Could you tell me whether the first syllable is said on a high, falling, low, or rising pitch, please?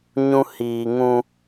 high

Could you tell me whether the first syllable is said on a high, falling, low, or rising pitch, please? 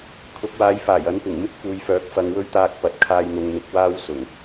rising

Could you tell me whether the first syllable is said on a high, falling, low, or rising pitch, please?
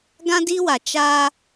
high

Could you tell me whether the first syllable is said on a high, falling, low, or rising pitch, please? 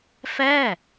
falling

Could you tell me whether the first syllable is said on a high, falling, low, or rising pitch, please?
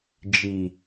low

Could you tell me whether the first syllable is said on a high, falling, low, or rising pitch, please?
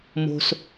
low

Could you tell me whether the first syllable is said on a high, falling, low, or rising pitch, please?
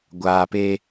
low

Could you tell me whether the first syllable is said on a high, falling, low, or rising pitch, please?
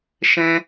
high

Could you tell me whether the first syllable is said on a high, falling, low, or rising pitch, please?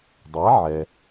rising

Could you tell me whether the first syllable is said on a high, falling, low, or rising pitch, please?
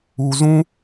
low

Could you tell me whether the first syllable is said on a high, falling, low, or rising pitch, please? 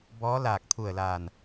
rising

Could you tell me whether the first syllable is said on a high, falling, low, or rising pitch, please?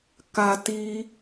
high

